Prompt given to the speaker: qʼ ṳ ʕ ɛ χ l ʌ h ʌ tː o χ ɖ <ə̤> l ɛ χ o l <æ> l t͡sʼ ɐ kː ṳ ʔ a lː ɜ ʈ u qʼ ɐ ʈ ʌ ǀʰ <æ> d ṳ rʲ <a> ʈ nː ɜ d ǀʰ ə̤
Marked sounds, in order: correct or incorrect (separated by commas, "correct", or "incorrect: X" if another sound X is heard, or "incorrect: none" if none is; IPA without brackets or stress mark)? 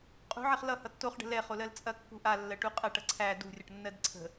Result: correct, incorrect: ɜ, correct, incorrect: ʌ